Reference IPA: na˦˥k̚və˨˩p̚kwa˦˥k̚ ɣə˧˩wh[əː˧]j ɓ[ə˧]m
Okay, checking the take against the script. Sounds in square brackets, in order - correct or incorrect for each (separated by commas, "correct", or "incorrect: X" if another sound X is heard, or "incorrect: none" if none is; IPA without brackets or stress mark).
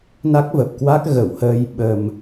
correct, incorrect: ə˨˩